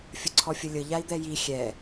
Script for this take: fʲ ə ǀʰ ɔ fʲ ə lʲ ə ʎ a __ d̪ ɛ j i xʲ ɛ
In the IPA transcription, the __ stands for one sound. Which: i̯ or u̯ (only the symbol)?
i̯